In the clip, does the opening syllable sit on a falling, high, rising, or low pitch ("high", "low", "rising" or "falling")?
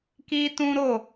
high